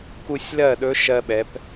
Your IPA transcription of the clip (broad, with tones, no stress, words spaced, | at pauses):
ku˧sʲlɜ˥˨ɗɵ˧˥ ʃɜ˧ɓɛ˩˧p